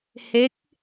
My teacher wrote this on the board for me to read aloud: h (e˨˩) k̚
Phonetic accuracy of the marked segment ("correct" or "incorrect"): incorrect